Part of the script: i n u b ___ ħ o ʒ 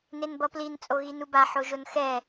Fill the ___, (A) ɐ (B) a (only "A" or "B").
B